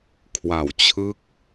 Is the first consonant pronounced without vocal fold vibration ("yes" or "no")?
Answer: yes